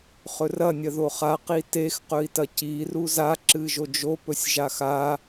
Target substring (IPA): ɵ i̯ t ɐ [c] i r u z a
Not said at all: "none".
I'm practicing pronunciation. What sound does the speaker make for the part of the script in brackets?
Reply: c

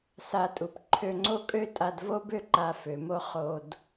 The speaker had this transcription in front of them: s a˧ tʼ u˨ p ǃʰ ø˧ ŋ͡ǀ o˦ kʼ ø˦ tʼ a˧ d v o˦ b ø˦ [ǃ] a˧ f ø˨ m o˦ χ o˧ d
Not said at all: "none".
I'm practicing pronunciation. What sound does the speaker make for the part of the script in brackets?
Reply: ǃ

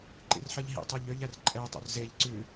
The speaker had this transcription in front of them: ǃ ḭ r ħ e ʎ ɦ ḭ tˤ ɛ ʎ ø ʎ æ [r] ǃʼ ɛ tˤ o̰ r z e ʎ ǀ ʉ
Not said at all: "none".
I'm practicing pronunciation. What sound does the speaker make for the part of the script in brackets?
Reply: r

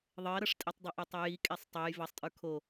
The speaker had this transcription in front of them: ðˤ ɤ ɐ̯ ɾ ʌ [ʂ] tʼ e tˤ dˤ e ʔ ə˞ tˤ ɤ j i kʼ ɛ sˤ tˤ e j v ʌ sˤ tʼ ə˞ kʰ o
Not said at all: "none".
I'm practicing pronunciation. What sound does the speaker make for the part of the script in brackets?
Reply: ʂ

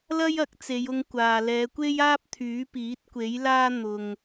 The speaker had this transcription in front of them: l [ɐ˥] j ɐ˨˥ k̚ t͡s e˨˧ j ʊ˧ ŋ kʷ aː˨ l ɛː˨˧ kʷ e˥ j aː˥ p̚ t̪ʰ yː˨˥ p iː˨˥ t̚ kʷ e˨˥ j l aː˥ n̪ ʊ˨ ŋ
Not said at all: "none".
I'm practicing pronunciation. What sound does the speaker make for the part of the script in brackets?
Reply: ɐ˥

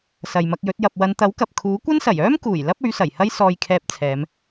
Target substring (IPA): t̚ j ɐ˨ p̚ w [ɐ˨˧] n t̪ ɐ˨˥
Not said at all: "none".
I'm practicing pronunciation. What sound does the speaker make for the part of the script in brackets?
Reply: ɐ˨˧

